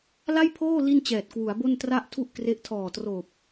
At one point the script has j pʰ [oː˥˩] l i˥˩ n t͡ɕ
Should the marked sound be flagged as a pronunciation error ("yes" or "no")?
no